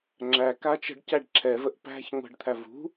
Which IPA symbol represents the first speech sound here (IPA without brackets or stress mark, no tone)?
ŋ͡ǁ